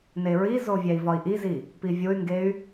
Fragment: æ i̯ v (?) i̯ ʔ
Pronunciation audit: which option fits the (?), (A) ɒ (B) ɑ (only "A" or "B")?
A